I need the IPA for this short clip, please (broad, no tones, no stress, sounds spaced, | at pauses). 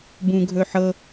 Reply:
b ũ ɡʱ ɵ ħ ɤ